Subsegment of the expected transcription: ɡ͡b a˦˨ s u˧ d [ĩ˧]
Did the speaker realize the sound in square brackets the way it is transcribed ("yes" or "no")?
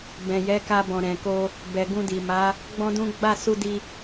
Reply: no